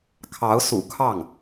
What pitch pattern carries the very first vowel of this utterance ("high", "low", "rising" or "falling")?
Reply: rising